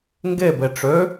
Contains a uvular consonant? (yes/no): no